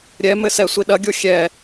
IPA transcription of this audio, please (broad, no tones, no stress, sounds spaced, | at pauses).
ɾʲ ɛ m ɘ s ɛ sʷ i ɗ ɐ ɡʲ o xʲ ɛ